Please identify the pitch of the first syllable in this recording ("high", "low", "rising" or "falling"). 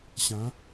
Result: rising